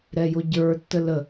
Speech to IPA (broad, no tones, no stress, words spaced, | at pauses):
ɾɛjoɟə˞ tːələ